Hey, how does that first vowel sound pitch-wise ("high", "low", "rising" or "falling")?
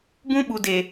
high